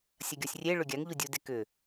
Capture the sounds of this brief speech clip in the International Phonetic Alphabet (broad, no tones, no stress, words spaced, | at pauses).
sʲɐɡʲɔsʲrʲeɭʏ ɡʲaŋʎudʲude kʏ